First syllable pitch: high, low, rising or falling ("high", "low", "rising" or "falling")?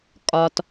low